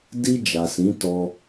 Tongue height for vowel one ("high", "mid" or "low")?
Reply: high